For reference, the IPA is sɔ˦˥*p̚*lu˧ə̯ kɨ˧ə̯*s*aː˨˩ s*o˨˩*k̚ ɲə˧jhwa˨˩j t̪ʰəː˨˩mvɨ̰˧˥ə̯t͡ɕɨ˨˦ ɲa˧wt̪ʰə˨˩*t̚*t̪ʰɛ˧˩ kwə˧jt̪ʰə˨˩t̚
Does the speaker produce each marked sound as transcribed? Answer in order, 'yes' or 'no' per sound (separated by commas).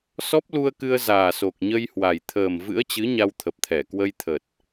yes, no, yes, no